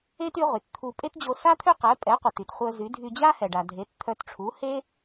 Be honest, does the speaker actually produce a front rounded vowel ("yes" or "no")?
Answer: yes